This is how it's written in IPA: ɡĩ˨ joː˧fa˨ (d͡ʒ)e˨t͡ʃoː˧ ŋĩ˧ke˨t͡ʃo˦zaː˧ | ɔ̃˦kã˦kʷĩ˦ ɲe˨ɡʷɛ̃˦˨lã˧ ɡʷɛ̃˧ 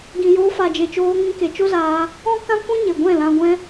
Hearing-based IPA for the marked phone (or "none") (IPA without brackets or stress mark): d͡ʒ